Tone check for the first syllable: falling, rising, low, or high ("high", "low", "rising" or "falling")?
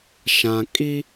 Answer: low